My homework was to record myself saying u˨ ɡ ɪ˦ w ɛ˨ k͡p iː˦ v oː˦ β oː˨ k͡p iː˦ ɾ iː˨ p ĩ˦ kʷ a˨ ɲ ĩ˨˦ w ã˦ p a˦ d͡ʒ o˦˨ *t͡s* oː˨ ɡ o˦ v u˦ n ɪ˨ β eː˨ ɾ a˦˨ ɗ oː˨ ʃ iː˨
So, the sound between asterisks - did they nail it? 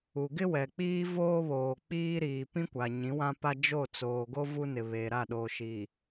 yes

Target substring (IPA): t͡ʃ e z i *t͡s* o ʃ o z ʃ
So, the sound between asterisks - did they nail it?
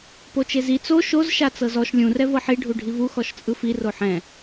yes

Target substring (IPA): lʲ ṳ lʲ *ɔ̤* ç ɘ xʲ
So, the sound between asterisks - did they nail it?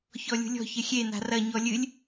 yes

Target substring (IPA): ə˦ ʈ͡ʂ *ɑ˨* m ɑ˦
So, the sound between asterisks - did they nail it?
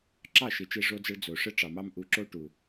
yes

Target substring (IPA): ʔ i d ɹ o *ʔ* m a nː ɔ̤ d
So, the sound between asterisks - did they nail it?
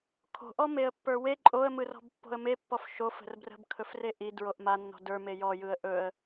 yes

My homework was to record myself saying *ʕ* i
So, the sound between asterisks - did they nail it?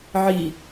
yes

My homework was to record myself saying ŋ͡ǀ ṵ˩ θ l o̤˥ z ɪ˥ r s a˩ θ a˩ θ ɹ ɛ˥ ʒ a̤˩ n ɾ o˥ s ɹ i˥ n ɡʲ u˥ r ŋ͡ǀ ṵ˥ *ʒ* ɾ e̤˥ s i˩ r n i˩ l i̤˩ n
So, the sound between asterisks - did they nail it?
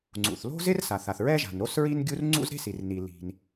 no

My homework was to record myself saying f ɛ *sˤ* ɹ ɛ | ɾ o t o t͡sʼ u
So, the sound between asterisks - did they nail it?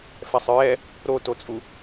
yes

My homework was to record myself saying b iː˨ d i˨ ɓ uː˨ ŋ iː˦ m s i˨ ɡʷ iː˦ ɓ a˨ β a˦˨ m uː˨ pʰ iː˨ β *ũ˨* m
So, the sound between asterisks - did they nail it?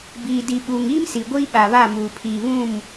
no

